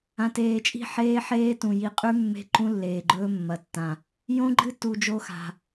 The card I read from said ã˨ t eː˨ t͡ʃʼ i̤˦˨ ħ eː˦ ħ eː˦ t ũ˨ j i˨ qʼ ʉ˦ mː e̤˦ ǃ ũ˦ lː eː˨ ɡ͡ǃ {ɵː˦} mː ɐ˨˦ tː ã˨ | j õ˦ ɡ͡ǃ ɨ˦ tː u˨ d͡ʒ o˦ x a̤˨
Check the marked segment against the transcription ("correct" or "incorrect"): correct